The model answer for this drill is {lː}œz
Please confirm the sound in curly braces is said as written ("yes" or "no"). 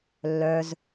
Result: yes